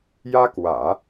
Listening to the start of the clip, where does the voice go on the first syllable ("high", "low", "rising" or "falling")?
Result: high